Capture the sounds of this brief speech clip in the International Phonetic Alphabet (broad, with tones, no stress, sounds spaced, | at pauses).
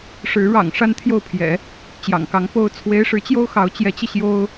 ʂ ɻ̩˧˥ ɻ ɑ̰˨˩ ŋ ʂ a˥ n t̪ʰ j o˥˩ ʊ̯ pʰ j ɛ̰˨˩˦ | t͡ɕ j ɑ̰˨˩ ŋ k ɑ˧˥ ŋ p o˥ ʊ̯ t͡sʰ w e˧˥ ɪ̯ ʂ ɻ̩˧˥ t͡ɕ j o˥ ʊ̯ x ɑ˧˥ ʊ̯ t͡ɕ j ɛ˧˥ t͡ɕ i˧ ɕ j o˥ ʊ̯